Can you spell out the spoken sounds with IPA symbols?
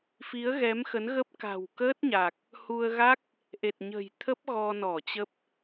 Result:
f i˨˦ ə̯ ɣ ɛ˨˦ m x ə˨˦ n ɣ ə˦˥ p̚ k a̤˨˩ w k əː˦˥ t̚ ɲ a˨˩ k̚ | h u˧ ə̯ ɣ a˦˥ k̚ | ʔ e˨˩ t̚ ɲ ə̤˨˩ j t̪ʰ ə˦˥ p̚ ɣ ɔ˧ n ɔ˧˩ t͡ɕ ə˦˥ p̚

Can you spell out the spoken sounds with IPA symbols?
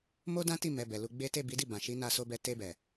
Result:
m o˦ d ã˦ t i˦˨ m ɛ˨ b ɛ˨ l u˧ ɡ͡b e˦ t e˦˨ b i˨˦ d i˦˨ b ã˨ ʃ i˨˦ n a˧ s o˧ b ɛ˧ t e˧ b ɛ˨

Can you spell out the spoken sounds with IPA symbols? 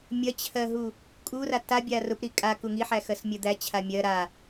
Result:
mʲ ɐ t͡ɕʰ ɜ ɦ u | kʼ u r a t a bʲ a r ʊ p ɾ i kʼ a k u ŋ i ħ æ x ɜ s mʲ ɜ d̪ æ t͡ɕʰ a mʲ ɜ ɾ a

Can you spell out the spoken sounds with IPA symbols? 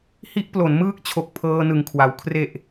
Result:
h i˦˥ ʔ p l o˩˦ n m ɯː˦˥ k̚ t͡ɕʰ o˨˩ k̚ pʰ ɤː˧ n ɯ˨˩ ŋ kʰ w a˩˦ w kʰ r e˨˩ ʔ

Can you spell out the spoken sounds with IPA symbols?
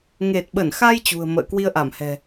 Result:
ŋ e˨˩ t̚ ɓ ə˧˩ n x a˧ j t͡ɕ ṳ˨˩ ə̯ m ə̰ː˧˨ k w i˧ ə̯ ʔ a˧˩ m h ɛ̤˨˩

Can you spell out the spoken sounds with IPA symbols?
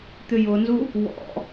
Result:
t̪ ʏ j ʊ n z u | w ɔ̰

